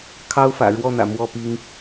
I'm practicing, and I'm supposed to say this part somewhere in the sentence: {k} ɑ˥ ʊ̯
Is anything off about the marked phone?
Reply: yes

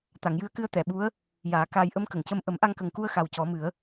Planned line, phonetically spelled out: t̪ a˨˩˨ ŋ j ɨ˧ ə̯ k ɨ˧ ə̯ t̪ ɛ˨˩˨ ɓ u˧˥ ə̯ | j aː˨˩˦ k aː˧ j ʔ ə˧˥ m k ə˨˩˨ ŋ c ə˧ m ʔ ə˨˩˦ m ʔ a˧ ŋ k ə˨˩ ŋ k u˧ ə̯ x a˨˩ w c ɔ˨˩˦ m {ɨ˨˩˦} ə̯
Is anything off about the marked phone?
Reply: no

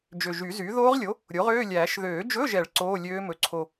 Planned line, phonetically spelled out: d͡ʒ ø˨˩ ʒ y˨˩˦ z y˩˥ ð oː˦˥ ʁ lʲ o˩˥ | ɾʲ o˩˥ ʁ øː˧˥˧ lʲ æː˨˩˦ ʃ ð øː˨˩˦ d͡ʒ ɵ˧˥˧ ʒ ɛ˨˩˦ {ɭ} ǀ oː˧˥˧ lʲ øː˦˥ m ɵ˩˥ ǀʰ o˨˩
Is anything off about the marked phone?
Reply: no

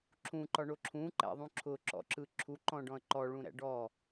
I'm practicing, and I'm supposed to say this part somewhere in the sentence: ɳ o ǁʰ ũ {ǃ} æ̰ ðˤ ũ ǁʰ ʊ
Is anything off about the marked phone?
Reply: no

